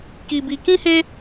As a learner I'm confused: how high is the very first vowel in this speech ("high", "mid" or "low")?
high